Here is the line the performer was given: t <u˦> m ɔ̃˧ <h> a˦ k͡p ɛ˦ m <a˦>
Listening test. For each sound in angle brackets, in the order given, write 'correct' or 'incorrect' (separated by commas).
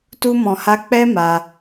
correct, correct, incorrect